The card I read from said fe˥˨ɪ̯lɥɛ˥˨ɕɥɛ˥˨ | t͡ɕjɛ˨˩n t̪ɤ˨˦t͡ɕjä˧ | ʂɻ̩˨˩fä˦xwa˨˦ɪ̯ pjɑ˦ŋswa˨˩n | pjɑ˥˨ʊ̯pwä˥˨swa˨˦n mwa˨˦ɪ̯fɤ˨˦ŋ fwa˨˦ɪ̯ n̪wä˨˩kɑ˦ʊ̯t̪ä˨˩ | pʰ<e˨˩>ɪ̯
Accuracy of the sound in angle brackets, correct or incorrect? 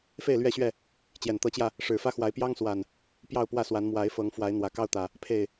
correct